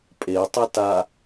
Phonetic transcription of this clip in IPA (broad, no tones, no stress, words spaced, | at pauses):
pʼetˤɪ ta